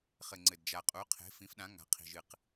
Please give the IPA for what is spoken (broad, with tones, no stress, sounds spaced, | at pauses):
χ ɘ˨˩ ŋ͡ǀ ɘ˨˩ d d͡ʒ a˨˩ qʼ u˩˥ qʰ e̤˩˥ f ĩ˩˥ f ɗ ã˩˥ ŋ a̤˩˥ qʰ i̤˨˩ ʒ ɨ˨˩ q